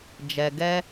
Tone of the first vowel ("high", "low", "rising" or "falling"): low